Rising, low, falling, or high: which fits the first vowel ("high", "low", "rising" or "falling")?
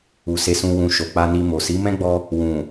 low